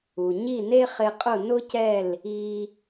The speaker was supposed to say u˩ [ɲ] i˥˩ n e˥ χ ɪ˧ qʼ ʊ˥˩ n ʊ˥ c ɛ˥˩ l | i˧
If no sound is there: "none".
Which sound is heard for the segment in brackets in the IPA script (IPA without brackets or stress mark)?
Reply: ɲ